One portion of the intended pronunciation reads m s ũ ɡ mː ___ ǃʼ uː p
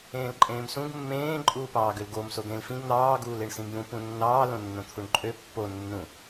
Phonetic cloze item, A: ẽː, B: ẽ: A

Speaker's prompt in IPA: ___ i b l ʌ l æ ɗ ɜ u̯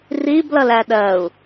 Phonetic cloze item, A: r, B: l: A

